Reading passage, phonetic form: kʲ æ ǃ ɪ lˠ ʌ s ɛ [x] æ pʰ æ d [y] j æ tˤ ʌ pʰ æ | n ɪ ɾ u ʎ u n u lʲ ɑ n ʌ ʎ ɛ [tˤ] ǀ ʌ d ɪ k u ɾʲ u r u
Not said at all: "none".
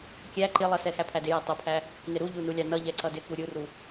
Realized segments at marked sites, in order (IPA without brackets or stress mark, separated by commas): x, ɪ, none